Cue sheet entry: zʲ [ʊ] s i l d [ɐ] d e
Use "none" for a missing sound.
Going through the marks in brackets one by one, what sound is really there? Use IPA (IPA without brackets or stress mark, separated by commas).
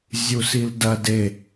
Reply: u, ɐ